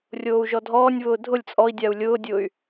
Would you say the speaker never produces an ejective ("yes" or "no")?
no